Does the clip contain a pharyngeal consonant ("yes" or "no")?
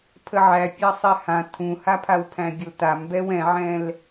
yes